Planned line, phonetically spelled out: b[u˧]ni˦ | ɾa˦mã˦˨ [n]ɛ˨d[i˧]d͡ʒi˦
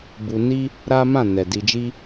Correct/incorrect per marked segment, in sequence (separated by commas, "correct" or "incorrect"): correct, correct, correct